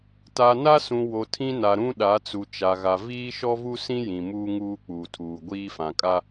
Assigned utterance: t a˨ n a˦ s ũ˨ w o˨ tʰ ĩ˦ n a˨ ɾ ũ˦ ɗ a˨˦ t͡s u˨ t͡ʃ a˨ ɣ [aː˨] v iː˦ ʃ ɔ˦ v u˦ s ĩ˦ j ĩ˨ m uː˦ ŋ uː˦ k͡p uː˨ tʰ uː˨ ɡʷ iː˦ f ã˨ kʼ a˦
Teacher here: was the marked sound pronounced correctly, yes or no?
no